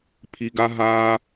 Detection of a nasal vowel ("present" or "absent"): absent